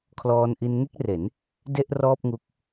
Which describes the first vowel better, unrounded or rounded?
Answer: rounded